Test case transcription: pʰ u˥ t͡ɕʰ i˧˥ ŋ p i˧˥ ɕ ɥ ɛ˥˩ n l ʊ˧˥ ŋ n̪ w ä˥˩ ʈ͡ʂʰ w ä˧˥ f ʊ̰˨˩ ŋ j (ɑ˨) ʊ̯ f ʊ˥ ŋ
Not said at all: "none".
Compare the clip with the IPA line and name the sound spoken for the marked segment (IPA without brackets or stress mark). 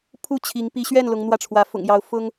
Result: ɑ˧˥